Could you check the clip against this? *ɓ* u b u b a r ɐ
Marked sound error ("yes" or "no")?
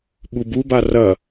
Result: no